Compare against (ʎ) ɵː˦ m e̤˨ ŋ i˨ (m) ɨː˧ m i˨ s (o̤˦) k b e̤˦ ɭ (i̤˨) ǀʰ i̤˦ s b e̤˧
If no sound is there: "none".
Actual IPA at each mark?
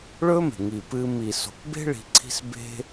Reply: ɭ, p, o̤˨, i̤˧

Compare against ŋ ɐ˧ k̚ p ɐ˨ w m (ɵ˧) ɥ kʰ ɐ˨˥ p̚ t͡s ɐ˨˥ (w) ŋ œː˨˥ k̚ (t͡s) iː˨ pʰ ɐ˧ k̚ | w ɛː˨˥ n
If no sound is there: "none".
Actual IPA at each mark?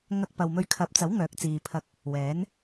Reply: ɵ˧, w, t͡s

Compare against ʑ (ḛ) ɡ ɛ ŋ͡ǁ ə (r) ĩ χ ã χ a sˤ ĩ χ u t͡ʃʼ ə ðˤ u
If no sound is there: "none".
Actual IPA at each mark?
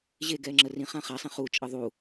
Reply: e, r

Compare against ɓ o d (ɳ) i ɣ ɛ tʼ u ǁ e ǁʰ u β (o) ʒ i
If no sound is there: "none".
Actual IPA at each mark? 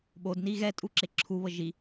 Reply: n, ɤ

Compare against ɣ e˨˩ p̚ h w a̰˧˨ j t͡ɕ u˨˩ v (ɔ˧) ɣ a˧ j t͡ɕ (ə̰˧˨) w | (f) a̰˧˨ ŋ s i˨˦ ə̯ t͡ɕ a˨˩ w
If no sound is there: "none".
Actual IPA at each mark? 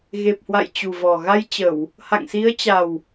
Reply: ɔ˨˩, ə˧˩˨, h

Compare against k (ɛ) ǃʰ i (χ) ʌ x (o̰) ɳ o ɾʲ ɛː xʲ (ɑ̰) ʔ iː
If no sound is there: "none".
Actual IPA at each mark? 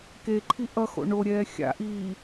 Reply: e, ʔ, o̰, a̰

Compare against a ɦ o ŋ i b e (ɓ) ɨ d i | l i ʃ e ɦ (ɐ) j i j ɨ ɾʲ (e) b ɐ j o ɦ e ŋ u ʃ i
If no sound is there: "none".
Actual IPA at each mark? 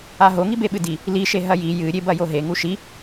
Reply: ɓ, ɐ, e

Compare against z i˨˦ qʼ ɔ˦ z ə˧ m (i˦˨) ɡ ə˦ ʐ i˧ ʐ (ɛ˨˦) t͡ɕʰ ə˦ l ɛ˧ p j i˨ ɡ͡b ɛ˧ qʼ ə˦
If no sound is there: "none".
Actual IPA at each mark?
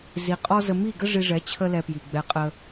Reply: i˦˨, ɛ˨˦

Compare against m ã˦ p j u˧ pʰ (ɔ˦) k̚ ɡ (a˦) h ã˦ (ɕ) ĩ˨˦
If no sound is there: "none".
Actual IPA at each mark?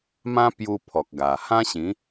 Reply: ɔ˨, a˨˩, ɕ

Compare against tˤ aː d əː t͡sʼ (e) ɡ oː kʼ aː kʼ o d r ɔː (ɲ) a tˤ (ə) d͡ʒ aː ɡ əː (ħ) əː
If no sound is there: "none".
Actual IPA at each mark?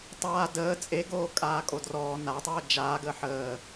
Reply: e, n, əː, ħ

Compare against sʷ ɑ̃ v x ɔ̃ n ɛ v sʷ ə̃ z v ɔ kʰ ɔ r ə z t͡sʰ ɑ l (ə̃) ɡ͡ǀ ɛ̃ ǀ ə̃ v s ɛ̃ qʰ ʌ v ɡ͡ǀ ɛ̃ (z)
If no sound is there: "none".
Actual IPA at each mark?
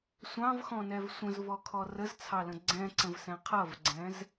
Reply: ə̃, z

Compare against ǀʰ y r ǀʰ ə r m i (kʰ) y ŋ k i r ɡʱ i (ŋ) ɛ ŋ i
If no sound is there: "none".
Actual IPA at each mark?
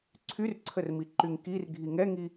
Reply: ǃ, ŋ

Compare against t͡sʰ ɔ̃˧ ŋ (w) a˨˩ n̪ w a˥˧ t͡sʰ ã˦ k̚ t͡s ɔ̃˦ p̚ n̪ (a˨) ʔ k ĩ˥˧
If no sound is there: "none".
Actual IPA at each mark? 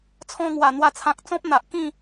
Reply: w, a˨

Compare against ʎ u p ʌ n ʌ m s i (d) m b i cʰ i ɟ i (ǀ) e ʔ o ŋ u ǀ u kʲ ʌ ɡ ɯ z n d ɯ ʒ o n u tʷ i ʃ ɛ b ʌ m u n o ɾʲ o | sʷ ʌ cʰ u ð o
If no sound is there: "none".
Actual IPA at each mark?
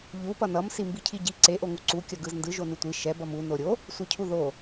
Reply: none, ǀ

